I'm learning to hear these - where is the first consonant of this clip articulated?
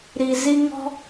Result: tongue tip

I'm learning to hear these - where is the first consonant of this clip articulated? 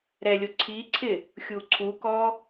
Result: tongue tip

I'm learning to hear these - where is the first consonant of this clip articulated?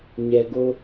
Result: palate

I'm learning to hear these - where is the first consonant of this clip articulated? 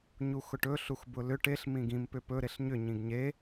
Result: palate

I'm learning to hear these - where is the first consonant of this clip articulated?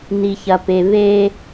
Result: tongue tip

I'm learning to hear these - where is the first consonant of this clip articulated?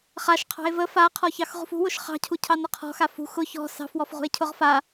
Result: uvula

